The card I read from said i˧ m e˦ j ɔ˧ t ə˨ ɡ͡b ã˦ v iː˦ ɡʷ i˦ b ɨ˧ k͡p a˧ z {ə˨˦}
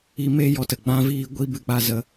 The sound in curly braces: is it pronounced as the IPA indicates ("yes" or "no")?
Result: no